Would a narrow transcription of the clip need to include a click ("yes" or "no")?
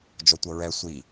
no